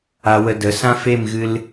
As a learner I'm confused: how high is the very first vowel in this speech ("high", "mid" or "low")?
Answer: low